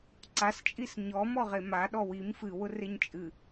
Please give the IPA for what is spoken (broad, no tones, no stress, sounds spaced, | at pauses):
ǀ a s t͡ʃʼ i s ɲ ɔ m ɔ ʁ e m a ɗ ɔ w i m f ɨ w ʊ r e ɲ t͡ʃʼ ɨ